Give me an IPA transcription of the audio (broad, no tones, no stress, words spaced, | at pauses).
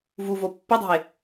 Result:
vuvo pːɵdˤṳe̯